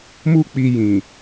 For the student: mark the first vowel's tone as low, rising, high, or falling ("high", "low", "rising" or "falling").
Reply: high